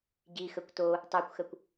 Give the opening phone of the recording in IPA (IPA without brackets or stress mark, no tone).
ɟ